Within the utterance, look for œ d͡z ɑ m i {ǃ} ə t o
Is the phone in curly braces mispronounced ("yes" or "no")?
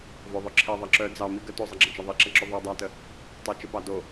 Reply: yes